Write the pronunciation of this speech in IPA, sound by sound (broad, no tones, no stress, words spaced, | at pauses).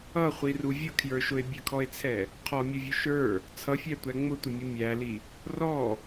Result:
ʌχʷiru vʲʊkʰjə˞ʃʊe̯ bʲəkʰɔe̯t͡sʰɛ | qʰɔmʲʊvʲʊ ʃə˞ | t͡sʰʌfʲætʷæ ŋ͡mʊtʷəmʲʊ mʲæli | rɔ